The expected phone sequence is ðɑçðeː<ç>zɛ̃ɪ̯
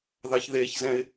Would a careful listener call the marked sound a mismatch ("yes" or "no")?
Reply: no